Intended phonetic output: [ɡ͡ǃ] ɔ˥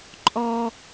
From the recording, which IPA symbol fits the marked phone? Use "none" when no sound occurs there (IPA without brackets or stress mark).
ǃʼ